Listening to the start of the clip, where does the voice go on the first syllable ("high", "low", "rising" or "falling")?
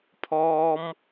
high